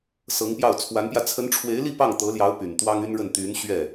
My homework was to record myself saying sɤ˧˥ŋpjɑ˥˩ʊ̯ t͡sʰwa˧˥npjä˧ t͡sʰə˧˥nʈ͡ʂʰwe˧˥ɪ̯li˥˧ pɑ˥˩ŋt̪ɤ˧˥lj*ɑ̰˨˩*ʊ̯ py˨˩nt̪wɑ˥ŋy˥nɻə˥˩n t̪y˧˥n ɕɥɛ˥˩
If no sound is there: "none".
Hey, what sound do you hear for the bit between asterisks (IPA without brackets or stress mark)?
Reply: ɑ˧˥